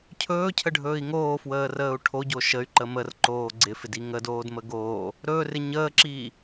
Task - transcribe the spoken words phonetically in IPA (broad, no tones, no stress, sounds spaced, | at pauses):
cʰ ɵː cʰ ə ɖʱ ɵː i̯ ŋ oː f w əː r əː u̯ ʈʰ o ɟ o ʃ ə y̯ ǃ ə m ə r ǃ oː ɡ͡ǀ ɪ f ɪ d i ŋ ə d oː d m ə ɡ oː | ɾ ɵː r ɪ ɲ əː ǁ iː